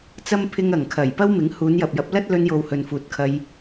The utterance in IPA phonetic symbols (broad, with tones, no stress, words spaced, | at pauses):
t͡sɐ˥m pʰɪ˧ŋɐ˨˩ŋ kʰɐ˨˩jpɐ˥wmɪ˨˥ŋ huː˨˧njɐ˨p̚jɐ˨˥p̚ lɐ˥t̚lɵ˧njo˨w hɵ˨nfuː˨t̚kʰɐ˧j